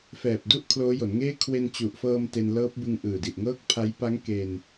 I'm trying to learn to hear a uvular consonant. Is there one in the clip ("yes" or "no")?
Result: no